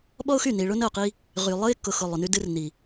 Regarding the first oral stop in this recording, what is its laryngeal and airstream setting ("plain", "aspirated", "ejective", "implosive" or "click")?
implosive